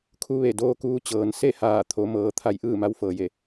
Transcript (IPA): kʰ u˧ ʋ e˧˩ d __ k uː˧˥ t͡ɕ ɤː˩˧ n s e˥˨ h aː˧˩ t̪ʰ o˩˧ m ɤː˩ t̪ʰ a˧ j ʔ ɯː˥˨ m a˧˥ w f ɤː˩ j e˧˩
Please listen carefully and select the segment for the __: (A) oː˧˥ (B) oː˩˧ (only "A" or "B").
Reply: A